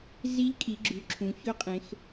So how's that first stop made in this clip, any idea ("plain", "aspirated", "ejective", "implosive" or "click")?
ejective